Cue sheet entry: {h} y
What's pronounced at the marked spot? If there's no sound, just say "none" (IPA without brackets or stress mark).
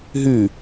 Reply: ɦ